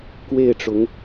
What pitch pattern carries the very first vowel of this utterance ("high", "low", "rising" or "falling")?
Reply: falling